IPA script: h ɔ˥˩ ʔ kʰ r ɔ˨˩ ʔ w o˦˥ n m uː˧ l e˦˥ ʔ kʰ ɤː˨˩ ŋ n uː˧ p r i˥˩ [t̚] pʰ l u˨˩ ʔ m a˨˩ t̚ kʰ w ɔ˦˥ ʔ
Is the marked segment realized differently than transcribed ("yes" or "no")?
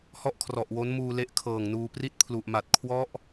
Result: no